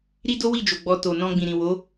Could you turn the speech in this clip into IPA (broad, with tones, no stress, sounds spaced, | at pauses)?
ɾ i˦ d o˦ w i˦˨ d͡ʒ o˨ ɡ͡b ɔ˨ t o˨ n ɔ̃˧ ɡ͡b ĩ˨ ɾ ĩ˨ w o˨˦